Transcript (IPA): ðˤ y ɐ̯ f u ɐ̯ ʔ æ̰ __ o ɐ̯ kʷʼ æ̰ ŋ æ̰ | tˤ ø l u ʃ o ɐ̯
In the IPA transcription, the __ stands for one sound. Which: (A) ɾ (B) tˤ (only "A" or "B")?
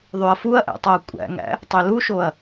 B